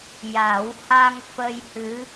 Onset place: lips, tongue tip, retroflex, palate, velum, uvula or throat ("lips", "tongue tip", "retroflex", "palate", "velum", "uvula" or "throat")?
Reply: palate